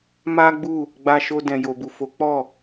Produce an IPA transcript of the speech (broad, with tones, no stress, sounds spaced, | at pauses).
m a˦ ɡ͡b u˦˨ | ɡ͡b a˧ ʃ o˧ d ɛ̃˨ j o˨ b u˨ f o˨˦ k͡p ɔ˦˨